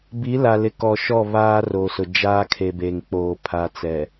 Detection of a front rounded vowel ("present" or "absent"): absent